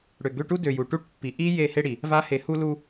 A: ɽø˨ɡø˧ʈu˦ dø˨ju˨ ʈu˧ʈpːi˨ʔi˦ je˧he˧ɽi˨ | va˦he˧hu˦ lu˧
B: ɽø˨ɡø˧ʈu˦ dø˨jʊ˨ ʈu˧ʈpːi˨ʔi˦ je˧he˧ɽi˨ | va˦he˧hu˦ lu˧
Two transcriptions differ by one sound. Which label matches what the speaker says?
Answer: A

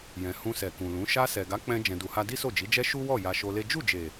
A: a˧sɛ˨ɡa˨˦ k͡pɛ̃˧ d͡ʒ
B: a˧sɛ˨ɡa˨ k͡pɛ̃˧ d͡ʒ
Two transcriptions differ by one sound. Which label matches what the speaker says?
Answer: A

